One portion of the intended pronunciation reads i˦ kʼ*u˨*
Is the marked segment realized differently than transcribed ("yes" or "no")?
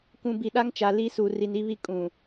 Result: yes